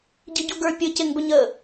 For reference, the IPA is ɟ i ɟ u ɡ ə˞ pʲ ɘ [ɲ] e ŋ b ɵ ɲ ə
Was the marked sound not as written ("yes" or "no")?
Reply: yes